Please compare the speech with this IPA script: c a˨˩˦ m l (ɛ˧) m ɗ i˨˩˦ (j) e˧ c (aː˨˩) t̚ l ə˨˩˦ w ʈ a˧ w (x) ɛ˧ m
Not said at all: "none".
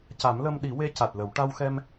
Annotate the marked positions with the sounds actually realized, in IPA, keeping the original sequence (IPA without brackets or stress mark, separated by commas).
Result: ə˧, w, a˨˩, x